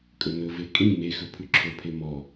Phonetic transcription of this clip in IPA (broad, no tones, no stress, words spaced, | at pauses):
kʼɵnɵve kʼĩ mexɵ pʰʉǁʰɵpʰe mɔ